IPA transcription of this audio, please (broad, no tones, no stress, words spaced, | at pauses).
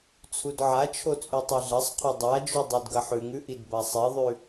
t͡sʰudʕat͡ʃʰo t͡sʼʉtˤeɮɐsˤqʰo dˤad͡ʒu dˤʉdɡɐħʉŋʉ ʔidbasˤeðˤʉ